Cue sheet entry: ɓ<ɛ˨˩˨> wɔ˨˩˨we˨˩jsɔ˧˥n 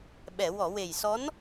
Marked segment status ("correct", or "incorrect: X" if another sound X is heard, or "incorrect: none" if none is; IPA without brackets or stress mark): correct